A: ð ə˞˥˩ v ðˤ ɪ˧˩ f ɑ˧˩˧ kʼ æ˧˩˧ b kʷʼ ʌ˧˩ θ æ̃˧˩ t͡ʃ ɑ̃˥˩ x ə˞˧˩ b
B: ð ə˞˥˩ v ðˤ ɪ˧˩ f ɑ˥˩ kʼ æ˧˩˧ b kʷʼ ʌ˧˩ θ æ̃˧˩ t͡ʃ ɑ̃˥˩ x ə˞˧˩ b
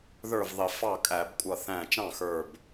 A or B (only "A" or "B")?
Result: B